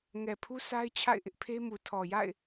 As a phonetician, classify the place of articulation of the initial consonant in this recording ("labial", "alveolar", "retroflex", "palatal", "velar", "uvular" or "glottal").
velar